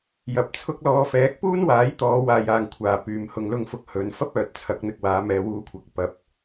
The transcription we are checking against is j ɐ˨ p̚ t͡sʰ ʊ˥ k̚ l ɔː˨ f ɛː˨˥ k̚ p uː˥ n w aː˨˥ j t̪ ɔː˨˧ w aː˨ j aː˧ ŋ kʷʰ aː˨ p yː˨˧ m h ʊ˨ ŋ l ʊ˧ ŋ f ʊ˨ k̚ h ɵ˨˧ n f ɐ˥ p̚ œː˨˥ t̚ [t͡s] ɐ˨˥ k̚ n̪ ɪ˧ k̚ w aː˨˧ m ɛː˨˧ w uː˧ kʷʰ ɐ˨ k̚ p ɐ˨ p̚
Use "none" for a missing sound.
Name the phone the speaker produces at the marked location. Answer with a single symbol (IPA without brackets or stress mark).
t͡sʰ